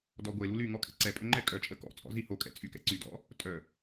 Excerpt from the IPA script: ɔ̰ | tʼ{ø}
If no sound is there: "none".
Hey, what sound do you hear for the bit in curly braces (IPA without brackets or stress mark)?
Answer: œ